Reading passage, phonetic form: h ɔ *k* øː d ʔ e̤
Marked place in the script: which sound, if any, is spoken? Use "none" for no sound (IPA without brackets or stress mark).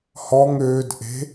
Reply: ŋ